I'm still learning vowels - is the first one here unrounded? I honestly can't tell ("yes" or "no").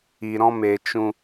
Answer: yes